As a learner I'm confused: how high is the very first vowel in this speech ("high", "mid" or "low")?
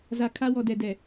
low